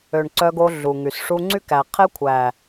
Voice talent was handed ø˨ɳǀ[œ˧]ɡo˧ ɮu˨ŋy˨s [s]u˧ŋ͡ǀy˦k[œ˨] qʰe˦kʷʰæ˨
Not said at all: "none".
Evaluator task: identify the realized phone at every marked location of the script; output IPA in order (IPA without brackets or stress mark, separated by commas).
œ˧, ʂ, æ˨